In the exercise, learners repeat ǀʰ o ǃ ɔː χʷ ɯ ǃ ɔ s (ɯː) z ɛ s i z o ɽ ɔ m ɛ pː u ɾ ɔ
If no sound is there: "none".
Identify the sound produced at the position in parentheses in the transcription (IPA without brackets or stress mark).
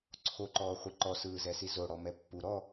ɯː